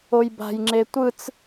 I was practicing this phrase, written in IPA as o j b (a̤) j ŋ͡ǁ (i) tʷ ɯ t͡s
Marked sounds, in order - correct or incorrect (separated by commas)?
correct, incorrect